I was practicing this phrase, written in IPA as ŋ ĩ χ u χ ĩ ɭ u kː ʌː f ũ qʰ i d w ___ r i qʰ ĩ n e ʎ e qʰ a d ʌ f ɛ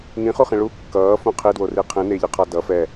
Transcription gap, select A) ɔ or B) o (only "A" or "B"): B